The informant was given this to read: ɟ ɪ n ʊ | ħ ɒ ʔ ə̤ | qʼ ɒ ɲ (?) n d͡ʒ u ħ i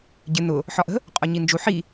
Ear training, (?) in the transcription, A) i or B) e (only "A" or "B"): A